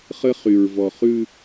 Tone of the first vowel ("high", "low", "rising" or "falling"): high